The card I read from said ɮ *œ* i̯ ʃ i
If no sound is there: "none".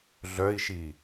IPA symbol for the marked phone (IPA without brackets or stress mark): œ